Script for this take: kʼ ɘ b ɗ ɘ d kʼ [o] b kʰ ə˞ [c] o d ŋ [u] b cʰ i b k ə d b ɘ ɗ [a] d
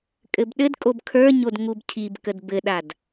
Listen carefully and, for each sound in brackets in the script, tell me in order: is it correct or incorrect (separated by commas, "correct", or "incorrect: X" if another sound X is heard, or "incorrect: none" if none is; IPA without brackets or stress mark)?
correct, incorrect: ɲ, correct, correct